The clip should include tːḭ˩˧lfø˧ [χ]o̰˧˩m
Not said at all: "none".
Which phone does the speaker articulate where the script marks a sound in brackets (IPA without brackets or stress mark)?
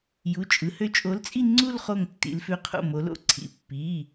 qʰ